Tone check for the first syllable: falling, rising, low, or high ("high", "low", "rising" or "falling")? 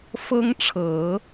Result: high